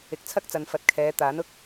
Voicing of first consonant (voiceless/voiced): voiceless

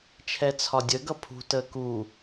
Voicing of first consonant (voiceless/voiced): voiceless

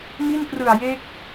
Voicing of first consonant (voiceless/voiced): voiced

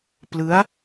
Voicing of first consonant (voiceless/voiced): voiceless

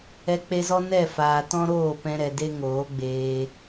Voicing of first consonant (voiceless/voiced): voiceless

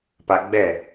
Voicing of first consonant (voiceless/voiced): voiceless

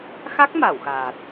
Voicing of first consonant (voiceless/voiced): voiceless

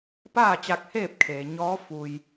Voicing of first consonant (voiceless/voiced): voiceless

